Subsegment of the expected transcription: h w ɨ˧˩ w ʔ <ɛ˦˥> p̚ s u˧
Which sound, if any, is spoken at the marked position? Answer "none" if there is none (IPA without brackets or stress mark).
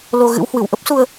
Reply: ə˦˥